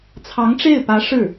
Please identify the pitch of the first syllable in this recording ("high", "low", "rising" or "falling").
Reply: rising